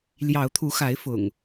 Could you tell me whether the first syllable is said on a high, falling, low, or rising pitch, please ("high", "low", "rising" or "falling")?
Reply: rising